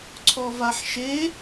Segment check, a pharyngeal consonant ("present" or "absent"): present